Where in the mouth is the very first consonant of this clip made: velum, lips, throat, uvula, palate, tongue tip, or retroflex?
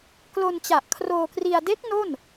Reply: velum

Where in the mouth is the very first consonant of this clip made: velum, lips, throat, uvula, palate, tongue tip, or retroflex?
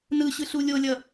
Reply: tongue tip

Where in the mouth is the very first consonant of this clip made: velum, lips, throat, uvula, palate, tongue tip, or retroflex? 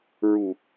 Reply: tongue tip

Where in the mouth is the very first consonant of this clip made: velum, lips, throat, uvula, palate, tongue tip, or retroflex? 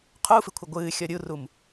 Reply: uvula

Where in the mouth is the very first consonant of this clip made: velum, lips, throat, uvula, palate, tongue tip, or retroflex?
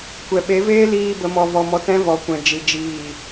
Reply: velum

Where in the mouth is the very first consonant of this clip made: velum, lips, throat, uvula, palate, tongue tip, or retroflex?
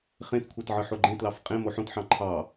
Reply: uvula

